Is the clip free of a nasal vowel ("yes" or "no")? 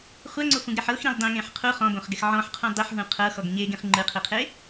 no